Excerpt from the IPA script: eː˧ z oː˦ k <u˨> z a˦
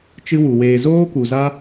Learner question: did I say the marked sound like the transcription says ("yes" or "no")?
yes